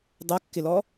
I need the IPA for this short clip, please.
dˤ ɛ kː ɪ l ɔ

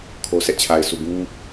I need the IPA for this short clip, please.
kʰ o˨ s ɛ˦ ʔ t͡ɕʰ a˨ ɪ̯ sʰ u˨ ɡ ũ˦

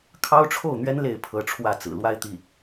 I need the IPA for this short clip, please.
kʰ ɑ˥ ʊ̯ ʈ͡ʂʰ o˥˩ ʊ̯ n̪ ɥ ɛ˥ n l e˥˩ ɪ̯ pʰ ɤ˧˥ ʈ͡ʂʰ w ä˥˩ t͡s ɹ̩˨˩ l w a˥˧ ɪ̯ t̪ i˥˩

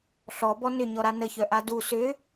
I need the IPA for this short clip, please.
ɬ ɔ b ɔ n ʏ ɲ ɔ ɾ a n ə ç œ ʔ a d u s ʏ

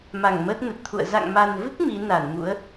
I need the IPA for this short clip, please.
m a˧˩ ŋ m əː˦˥ t̚ n ə˨˩ t̚ t̪ʰ ṵ˧˨ ə̯ z a̰˧˨ ŋ m a˨˩ n v ɨ˦˥ k̚ m i˨˦ n a˧˩ n m ṵ˧˥ ə̯

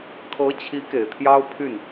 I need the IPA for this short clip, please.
kʰ ɤ˧˥ t͡ɕʰ i˧˥ k e˨˩ ɪ̯ t̪ʰ j ɑ˥ ʊ̯ pʰ y˥˩ n

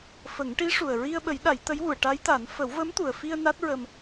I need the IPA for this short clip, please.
f ə˨˩˦ ŋ ʈ i˧˥ ʂ u˨˩ ə̯ ɹ i˧ ə̯ ɓ ə˨˩˦ j ɗ a˨˩˦ j t̪ ə˧˥ j w u˨˩˨ ə̯ ʈ a˧˥ j t̪ a˨˩˦ n f ə˨˩˦ w v ə˧˥ m t̪ u˨˩ ə̯ f i˧ ə̯ n a˦˥ t̚ ɹ ə˧ m

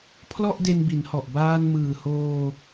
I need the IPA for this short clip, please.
pʰ l ɔ˥˩ ʔ d e˧ n b i˩˦ n h ɔ˨˩ ʔ b aː˧ n m ɯː˨˩ h oː˧

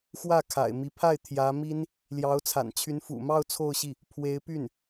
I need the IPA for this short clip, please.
x w ä˥˩ kʰ a̰˨˩ ɪ̯ m i˧˥ pʰ a˥˩ ɪ̯ t̪ʰ j ä˧˥ m i˥ n | l j ɑ˧˥ ʊ̯ t͡sʰ a̰˨˩ n t͡ɕʰ y˧˥ n f ṵ˨˩ m ɑ˥˧ ʊ̯ t͡sʰ o˥˧ ʊ̯ ɕ i˥˩ | pʰ w e˧˥ ɪ̯ p y˥˩ n

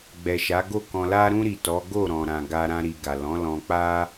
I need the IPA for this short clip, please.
ɡ͡b ɛ˨ ʃ a˨˦ ɡ o˦˨ k ɔ̃˧ l a˧ ɾ ũ˧ ɾ i˨ t ɔ˨˦ ɡ o˦˨ ɾ ɔ̃˨ ɾ ã˨ ɡ a˧ ɾ ã˧ ɾ i˨ ɡ a˨ l ɔ̃˨˦ l ɔ̃˧ k͡p a˦

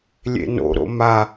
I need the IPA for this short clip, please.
lʲ ḛ n o̰ ɾ o̰ m a

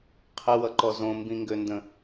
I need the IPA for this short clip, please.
qʰ ə w ʌ ǃ ɔ z õ m b ĩ ŋ ɡ ø n d ə̃

